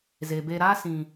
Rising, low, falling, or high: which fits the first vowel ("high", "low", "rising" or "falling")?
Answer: low